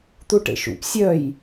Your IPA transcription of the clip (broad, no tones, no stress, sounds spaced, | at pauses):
t̪ u ʈ ḛ ʃ ṵ p sʲ œ j